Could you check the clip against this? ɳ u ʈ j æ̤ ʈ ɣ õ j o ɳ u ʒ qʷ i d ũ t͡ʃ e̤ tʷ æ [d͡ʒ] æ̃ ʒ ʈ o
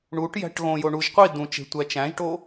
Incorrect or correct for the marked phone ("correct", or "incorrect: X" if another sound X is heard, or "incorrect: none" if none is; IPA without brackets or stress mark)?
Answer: incorrect: t͡ʃ